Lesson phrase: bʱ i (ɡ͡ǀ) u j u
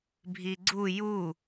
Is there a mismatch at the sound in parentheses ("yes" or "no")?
no